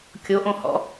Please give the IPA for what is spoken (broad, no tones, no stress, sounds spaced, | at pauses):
kʲ o ʔ õ h ɔ̰